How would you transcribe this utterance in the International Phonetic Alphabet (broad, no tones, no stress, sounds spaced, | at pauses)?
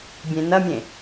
bʲ ẽ n ɐ mʲ ẽ